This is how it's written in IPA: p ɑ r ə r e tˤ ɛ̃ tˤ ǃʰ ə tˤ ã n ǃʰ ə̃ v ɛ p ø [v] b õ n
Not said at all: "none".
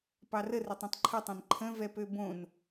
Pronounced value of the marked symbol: none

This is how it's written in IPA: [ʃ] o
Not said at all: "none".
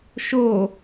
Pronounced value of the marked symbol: ʃ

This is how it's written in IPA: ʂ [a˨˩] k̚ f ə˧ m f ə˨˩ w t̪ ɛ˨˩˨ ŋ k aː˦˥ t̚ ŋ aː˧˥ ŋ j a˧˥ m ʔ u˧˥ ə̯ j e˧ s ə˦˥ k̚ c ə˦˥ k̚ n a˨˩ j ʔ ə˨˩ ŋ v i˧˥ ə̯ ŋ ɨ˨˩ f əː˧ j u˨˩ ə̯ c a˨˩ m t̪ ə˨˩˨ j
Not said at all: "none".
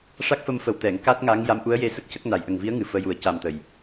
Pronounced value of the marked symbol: a˦˥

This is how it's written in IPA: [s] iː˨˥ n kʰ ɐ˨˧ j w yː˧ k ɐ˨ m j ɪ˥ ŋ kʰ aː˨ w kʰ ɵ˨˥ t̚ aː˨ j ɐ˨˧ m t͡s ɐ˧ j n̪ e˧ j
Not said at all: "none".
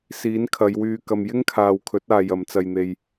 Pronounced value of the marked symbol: s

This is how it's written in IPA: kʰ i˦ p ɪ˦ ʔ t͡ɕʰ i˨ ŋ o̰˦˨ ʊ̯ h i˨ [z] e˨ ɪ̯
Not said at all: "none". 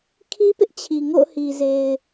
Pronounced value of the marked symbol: z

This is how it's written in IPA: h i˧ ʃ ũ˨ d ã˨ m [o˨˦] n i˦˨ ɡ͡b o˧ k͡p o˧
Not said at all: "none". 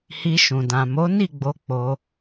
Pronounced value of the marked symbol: o˨˦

